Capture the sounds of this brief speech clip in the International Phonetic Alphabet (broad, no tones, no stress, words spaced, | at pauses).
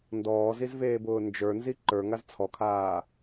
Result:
ndɔːzizveːbʊː nd͡ʒə˞nzi ǃə˞ŋaz t͡sʰɔkʰaː